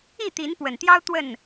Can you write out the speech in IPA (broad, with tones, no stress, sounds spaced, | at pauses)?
i˥˨ t̪ i˨˦ n p w ə˨˩ n t̪ j ɑ˦ ʊ̯ t̪ w ə˥˨ n